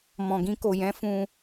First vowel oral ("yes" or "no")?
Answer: no